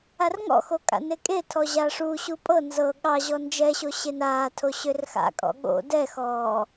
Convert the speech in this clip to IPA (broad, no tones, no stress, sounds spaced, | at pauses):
a r ŋ ɔ̰ x o kʼ a̰ n e kʼ e tʰ ɔ ʑ a ʂ u ɕ u pʼ ɤ n z ɤ ɠ ɑ ʑ ɔ n d͡ʒ ɛ ɕ o ɕ e n aː tʰ o ɕ ø r x a̰ kʼ ɔ̰ ɠ o̰ d ɛ x ɔː